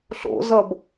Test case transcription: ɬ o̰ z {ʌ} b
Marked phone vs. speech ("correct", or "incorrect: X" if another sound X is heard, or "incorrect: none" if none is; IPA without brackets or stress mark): correct